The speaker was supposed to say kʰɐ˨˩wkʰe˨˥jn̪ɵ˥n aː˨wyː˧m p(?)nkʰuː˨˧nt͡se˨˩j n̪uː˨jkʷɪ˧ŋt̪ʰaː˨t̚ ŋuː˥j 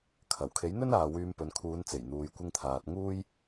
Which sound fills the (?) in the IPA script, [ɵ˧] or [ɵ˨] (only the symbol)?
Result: ɵ˨